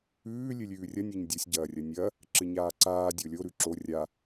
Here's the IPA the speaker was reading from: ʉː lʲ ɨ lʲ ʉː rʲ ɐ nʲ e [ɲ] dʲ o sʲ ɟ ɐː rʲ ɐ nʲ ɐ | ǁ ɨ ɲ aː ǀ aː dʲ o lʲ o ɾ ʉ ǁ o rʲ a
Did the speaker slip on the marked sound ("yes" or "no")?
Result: no